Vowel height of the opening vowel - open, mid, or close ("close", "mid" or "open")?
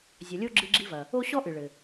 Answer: open